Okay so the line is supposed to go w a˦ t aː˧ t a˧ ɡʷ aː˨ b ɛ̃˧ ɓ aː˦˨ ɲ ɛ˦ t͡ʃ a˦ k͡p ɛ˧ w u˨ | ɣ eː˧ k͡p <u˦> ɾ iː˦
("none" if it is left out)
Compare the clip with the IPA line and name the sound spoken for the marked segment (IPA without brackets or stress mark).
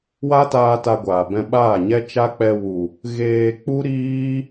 u˦